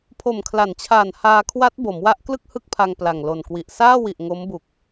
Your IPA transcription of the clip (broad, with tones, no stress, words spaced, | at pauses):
pʰo˨˩mkʰla˩˦nt͡ɕʰaː˨˩n haː˧kʰwa˦˥t̚ bo˩˦mwa˦˥ʔklɯ˥˩k̚ hɯ˥˩k̚pʰa˧ŋ pla˨˩ŋlo˨˩nkwi˨˩ʔ saː˥˩wi˨˩ʔ ŋo˦˥mbu˨˩k̚